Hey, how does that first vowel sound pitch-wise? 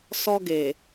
high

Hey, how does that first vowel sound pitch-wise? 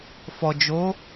low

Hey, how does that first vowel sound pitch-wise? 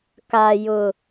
high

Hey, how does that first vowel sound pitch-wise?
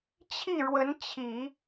falling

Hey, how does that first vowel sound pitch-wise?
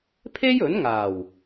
high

